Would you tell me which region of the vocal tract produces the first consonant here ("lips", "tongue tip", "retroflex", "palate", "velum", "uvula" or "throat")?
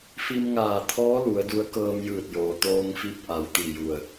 lips